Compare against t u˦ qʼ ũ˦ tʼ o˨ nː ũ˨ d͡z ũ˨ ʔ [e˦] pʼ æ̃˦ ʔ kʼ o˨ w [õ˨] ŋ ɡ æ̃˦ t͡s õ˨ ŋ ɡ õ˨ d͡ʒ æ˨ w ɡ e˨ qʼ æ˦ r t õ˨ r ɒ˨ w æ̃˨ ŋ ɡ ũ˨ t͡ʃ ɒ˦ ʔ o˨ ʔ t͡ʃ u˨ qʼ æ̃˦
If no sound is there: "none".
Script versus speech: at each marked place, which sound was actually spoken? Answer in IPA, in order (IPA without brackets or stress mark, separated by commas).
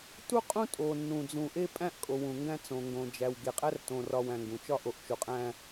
e˦, ũ˨